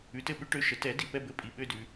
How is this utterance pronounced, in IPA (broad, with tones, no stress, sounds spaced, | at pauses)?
ʉ˩˥ t ɘ˧ ɓ ʉ˥ ʈ ø˧ ʃ ə˩˥ t ɛ˩˥ d i˩ p ɛ˥˩ b ɘ˥˩ pʼ i˩ ɓ ø˥˩ d ʉ˩